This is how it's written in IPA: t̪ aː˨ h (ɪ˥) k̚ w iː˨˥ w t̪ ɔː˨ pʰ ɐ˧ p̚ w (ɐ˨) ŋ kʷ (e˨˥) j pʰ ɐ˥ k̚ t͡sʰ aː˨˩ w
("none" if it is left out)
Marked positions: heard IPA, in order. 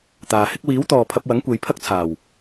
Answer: ɪ˥, ɐ˨˥, e˨˧

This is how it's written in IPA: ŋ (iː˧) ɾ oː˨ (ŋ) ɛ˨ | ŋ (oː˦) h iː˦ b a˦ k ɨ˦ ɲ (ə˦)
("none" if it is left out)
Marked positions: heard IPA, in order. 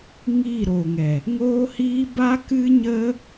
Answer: iː˦˨, ŋ, oː˦, ə˦

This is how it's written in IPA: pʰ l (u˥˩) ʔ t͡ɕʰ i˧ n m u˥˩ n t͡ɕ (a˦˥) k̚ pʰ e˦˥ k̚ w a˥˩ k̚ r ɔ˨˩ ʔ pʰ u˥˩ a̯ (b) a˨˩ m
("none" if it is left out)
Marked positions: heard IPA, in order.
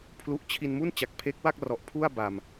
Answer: u˦˥, a˨˩, b

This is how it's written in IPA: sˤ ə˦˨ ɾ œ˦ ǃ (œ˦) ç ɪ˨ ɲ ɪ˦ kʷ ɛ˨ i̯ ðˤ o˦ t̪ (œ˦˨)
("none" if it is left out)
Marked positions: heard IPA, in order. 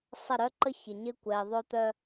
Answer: ə˦, œ˦

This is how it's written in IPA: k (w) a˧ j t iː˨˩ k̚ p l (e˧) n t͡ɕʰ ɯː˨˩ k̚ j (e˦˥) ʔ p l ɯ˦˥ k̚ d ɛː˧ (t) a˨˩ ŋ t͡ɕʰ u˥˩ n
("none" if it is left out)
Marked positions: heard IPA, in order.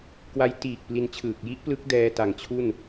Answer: w, i˧, i˦˥, t

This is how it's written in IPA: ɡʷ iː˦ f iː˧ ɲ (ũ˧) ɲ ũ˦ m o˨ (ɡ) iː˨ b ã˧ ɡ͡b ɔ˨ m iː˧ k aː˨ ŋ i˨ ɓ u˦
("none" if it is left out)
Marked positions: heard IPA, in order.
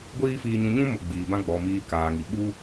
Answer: ũ˧, ɡ͡b

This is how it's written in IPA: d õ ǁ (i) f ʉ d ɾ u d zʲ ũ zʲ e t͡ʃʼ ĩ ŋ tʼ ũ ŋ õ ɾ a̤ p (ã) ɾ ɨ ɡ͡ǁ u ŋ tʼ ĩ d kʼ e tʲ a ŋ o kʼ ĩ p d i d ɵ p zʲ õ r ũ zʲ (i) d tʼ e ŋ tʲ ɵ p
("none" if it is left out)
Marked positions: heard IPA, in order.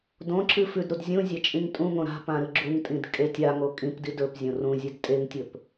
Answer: ɨ, ã, e

